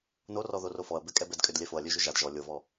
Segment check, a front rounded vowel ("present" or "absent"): present